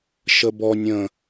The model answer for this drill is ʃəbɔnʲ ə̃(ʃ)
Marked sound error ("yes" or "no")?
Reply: yes